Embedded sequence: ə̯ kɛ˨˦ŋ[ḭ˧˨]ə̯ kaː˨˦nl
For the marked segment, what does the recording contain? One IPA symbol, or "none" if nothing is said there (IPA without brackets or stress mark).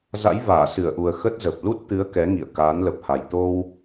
ḭ˧˨